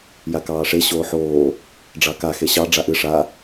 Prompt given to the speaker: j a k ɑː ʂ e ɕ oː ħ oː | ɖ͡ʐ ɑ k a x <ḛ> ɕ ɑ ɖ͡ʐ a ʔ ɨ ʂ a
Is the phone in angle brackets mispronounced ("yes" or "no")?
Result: yes